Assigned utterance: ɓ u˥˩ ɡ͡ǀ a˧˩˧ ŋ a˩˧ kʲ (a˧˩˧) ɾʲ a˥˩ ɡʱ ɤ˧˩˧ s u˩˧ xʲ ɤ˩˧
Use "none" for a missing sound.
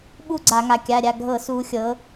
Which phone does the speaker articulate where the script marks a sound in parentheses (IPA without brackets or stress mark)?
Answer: a˩˧˩